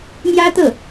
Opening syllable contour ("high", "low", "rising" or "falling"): high